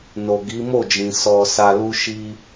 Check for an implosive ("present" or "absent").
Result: absent